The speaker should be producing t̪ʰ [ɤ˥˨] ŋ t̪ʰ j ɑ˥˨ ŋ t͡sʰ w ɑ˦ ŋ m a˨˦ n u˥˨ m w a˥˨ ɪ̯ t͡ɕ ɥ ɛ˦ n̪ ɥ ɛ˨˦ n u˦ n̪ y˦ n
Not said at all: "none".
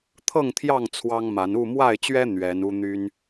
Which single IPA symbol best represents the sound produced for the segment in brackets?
ɤ˥˨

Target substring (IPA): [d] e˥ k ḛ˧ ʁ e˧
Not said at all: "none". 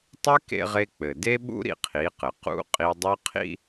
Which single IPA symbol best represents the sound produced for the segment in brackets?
tˤ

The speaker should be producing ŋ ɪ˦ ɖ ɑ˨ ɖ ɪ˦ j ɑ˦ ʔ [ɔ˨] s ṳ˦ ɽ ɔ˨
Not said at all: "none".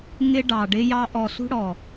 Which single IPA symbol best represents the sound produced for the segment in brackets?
ɔ˨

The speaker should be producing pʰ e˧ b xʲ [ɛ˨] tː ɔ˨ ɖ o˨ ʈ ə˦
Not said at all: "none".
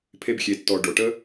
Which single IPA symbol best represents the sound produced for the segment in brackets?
e˨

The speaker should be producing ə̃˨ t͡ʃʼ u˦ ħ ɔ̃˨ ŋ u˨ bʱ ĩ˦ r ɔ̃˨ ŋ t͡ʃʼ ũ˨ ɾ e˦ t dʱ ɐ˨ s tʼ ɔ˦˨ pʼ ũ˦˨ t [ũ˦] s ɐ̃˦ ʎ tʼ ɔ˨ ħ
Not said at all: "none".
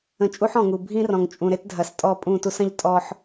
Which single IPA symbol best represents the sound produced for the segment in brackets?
u˦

